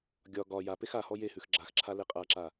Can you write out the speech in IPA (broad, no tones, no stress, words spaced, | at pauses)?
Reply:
ɡʲɒ ɡɒ japex ahɔ jehʉx ɡ͡ǁaxǁʰa leqʼaǁa